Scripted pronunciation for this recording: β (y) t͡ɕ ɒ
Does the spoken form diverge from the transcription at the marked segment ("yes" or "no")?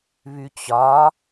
no